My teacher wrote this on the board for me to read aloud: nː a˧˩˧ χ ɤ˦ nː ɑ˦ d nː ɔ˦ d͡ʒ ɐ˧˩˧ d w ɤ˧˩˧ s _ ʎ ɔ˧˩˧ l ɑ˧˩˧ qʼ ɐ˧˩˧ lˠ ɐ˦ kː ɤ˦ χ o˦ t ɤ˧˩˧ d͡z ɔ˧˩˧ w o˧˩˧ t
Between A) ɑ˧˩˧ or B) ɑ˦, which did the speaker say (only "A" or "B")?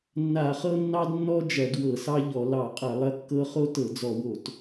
B